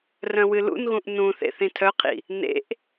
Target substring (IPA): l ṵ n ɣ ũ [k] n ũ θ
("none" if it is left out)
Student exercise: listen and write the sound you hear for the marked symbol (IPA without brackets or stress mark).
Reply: ʔ